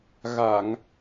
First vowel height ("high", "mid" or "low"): low